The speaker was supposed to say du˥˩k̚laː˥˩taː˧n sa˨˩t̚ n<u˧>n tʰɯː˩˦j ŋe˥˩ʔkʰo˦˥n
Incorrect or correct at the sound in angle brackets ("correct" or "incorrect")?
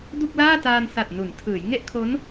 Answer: incorrect